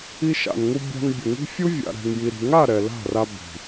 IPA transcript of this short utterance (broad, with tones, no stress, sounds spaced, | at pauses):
i˧ ʃ a̰˨ n ŋ u˧ bʲ a̤˧ n bʲ ʊ˨ ŋ i̤˦ fʲ u˦ vʲ a̰˨ ɾ ɛ̤˨ ŋ j i˨ ɾ i̤˨ ŋ a˦˨ ɾ ɛ˨ l a̤˦˨ r a˧ b i̤˨